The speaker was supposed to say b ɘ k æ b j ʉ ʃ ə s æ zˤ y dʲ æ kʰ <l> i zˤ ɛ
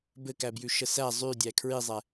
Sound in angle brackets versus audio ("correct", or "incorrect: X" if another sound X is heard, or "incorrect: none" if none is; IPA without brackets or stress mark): incorrect: ɹ